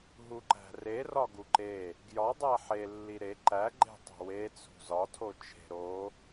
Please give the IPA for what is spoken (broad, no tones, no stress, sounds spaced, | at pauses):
ɦ u ǃ æ̤ r e r ɒ ɡ u ǃ e | ɡ j ɒ dˤ æ ħ e lː i ɾ e ǃ æ ɡ͡ǃ e̤ tˤ o̤ w e t͡sʰ ṳ z ɒ tʰ o t͡ʃʰ e̤ ɾ o